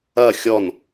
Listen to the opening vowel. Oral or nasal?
oral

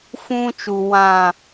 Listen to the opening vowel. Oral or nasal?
nasal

